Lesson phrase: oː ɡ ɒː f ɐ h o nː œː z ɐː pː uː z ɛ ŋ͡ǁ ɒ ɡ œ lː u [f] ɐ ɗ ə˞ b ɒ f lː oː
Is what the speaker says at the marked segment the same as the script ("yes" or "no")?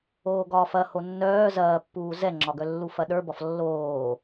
yes